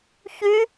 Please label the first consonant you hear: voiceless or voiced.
voiceless